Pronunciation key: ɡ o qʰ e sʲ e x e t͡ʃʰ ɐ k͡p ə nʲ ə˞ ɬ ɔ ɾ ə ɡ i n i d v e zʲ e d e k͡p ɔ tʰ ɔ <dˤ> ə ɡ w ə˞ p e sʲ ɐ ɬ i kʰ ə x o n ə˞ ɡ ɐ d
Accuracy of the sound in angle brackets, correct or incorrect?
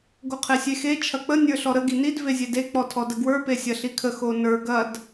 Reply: incorrect